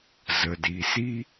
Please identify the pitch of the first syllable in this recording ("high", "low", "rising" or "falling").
low